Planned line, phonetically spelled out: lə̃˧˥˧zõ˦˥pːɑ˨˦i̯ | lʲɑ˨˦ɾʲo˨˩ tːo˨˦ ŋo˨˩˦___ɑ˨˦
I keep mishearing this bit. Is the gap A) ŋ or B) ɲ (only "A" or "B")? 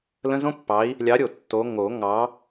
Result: A